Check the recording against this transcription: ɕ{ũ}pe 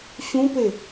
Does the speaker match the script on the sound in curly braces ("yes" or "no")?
yes